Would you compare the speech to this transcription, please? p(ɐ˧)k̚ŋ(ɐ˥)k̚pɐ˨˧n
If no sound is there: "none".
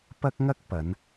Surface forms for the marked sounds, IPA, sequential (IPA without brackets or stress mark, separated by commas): ɐ˥, ɐ˥